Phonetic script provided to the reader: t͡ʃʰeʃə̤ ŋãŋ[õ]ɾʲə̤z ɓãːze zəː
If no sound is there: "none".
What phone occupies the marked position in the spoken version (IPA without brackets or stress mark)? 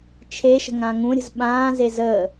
ũ